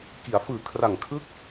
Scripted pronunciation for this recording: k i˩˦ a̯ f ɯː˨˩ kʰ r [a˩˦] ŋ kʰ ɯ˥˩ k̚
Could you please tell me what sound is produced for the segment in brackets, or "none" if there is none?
a˨˩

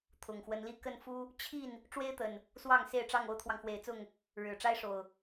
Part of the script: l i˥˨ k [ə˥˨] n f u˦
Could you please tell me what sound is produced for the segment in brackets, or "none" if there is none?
ə˥˨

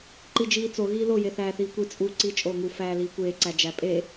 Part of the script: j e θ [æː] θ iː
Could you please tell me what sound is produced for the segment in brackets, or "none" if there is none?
æː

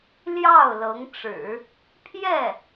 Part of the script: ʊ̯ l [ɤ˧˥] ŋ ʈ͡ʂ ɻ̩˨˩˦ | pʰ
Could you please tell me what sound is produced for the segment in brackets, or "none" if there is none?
ɤ˧˥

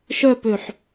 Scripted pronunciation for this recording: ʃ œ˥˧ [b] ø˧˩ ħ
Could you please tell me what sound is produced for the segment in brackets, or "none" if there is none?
p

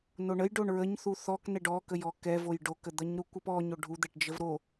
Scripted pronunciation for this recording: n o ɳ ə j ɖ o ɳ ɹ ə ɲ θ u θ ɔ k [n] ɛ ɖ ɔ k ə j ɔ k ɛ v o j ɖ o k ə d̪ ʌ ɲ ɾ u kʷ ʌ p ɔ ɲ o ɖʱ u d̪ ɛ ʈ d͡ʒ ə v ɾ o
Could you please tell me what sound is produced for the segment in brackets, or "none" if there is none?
n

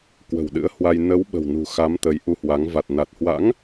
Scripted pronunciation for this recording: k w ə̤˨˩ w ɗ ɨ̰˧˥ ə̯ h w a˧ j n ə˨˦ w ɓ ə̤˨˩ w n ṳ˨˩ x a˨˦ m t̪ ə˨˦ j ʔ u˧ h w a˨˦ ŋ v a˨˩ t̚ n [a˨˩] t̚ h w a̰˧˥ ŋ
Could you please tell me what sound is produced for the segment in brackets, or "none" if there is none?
a˨˩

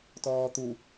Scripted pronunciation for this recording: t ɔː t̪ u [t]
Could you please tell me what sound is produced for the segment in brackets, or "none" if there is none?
none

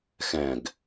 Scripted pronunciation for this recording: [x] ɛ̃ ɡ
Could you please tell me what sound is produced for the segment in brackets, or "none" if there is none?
x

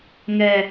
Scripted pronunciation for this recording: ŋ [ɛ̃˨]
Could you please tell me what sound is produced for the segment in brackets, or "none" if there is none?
ɛ˨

